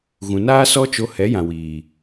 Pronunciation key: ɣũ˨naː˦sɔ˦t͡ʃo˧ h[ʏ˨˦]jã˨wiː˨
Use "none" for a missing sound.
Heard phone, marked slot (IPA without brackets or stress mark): ɛ˨˦